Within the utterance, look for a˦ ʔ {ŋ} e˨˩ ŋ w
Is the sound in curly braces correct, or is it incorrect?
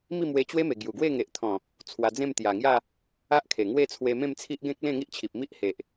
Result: incorrect